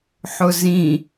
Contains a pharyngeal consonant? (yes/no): yes